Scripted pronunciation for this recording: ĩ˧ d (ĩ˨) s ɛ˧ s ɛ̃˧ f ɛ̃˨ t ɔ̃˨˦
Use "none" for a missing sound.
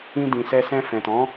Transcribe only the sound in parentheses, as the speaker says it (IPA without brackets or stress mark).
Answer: ĩ˨